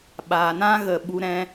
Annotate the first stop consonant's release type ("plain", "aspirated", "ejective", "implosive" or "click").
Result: implosive